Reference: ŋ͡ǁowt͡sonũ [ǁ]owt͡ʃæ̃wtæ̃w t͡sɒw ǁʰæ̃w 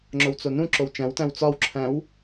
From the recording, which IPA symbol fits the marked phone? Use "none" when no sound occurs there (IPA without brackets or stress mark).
ǁ